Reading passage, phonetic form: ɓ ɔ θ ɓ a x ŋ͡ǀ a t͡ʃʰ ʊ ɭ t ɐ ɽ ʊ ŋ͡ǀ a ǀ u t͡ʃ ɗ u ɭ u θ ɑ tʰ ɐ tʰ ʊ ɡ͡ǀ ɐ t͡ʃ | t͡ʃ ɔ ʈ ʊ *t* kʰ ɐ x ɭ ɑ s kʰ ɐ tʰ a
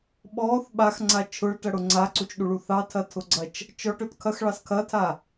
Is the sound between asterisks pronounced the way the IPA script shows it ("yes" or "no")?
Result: yes